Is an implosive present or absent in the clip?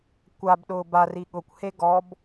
present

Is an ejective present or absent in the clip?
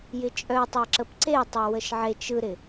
present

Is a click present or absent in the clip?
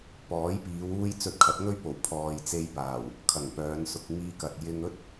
absent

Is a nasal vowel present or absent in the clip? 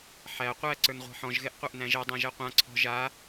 present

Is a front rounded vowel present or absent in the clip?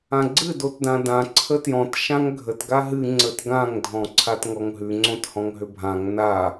present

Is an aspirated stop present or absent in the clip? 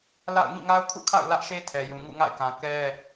present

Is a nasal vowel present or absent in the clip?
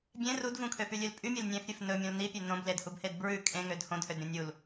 present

